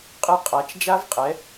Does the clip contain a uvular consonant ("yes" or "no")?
yes